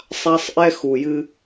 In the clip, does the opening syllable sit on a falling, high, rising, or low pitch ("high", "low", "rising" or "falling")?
high